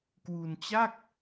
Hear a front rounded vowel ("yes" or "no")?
no